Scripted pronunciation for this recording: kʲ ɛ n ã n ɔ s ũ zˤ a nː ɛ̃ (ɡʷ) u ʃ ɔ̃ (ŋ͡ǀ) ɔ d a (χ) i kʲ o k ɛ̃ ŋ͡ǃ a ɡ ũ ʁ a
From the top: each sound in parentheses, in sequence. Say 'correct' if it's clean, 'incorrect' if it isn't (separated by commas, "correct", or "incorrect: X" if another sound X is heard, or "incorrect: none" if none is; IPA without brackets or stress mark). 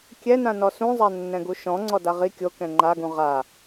incorrect: ɡ, correct, incorrect: ʁ